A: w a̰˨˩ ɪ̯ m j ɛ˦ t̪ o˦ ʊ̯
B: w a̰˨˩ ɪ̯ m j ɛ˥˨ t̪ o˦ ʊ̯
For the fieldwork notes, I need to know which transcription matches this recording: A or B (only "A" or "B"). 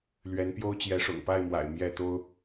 B